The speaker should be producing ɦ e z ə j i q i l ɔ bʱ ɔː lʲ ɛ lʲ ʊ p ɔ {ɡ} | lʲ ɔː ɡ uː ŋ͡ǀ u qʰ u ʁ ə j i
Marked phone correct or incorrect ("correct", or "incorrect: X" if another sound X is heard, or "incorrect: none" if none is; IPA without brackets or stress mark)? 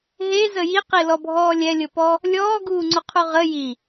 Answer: incorrect: none